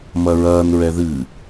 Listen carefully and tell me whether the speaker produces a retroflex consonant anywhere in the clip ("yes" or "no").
no